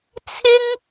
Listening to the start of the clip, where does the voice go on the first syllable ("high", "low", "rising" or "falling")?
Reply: high